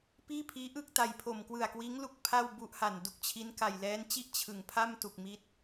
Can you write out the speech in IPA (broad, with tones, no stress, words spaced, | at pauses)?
piː˥˩pʰiː˦˥ ʔɯ˥˩k̚ta˨˩j pʰo˨˩mkwɯ˨˩a̯kwiː˦˥ŋlu˦˥k̚ pʰa˥˩wbu˦˥ʔha˨˩n du˨˩k̚t͡ɕʰi˦˥nka˨˩j lɛː˦˥nt͡ɕi˥˩ʔ t͡ɕʰɯ˩˦ŋpʰa˥˩mtu˨˩k̚ mi˦˥t̚